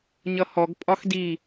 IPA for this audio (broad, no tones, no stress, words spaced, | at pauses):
ɲʌhɔɡ pʼɒxdi